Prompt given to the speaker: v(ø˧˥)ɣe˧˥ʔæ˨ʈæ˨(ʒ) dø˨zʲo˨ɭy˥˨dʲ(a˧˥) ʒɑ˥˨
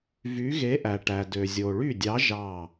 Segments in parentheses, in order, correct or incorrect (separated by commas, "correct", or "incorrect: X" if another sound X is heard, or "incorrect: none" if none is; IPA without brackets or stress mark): incorrect: y˧˥, incorrect: none, incorrect: ɑ˧˥